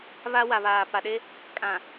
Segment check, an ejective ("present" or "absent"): present